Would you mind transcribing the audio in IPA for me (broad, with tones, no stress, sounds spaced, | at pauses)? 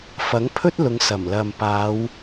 f ɐ˨˥ ŋ pʰ ɵ˥ t̚ l ʊ˨˧ ŋ s ɐ˨˩ m l ɐ˨ m p aː˨˧ w